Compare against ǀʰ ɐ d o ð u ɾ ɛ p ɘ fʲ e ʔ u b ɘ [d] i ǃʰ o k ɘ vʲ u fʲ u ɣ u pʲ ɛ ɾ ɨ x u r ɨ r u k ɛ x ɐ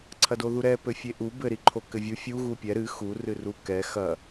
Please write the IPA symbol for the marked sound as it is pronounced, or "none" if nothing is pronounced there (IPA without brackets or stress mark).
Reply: ɾ